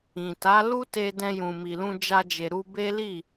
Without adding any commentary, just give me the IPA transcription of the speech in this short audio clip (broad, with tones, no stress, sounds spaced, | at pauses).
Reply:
ĩ˨ t a˨˦ l u˦ t e˧ d ɛ̃˧ j ũ˨ m i˨ l ũ˧ d͡ʒ a˧ d͡ʒ e˨ ɾ u˧ b e˦ l i˦˨